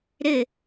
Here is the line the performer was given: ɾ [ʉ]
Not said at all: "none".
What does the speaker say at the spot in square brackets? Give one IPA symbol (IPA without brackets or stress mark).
ɘ